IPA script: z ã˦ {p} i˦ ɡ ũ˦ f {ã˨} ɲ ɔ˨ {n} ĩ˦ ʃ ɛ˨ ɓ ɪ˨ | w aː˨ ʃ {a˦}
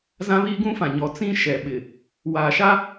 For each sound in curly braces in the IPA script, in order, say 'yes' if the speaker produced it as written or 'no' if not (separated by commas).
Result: no, yes, no, yes